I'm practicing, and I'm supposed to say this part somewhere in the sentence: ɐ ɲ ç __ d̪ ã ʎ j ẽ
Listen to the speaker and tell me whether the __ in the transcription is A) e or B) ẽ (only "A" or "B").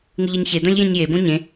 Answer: A